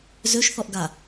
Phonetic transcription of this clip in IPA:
z ø ʃ θ ɔ ʔ ɡ a

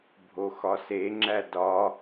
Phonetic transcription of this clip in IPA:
bʱ o x ɒ s e ŋ͡ǁ æ d ɒ

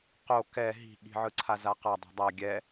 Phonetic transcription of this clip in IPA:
q o k ɛ ɦ i̤ ɠ i̤ ʕ ɯ ǀʰ a z a q a dˤ ɛ̤ dˤ a ɡʲ ɛ

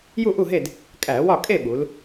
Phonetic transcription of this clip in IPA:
j u˥˨ ʔ u˥˨ ɦ e˥˨ d | kʼ æ˧˩˧ w ɒ˥˨ kʼ e˥˨ ɓ u˩˧ l

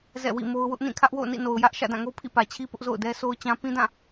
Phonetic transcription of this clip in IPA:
z ɛ̰˦˨ w ḭ˦˨ m o˦ ʊ̯ w ʊ˦ ʔ n ĩ˦˨ kʰ ä˦ ʔ w o̰˦˨ ʊ̯ n ḭ˦˨ n o˨ ʊ̯ j ä˦ ʔ ʃ ä̰˦˨ d ã˦˨ ŋ o˦ pʰ ḭ˦˨ p ä˨ t͡ɕʰ i˦ p ʊ˦ ʔ z o̰˦˨ ʊ̯ d ɛ˦ sʰ o˦ ʊ̯ t͡ɕ ã˦ p ĩ˦ d ã˦˨

